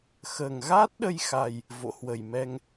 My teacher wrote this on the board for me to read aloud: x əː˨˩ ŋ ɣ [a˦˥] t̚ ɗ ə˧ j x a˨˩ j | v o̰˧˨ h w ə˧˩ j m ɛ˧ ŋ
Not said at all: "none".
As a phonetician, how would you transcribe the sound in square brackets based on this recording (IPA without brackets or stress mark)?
aː˦˥